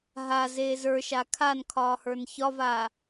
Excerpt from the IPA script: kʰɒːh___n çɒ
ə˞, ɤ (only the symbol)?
ə˞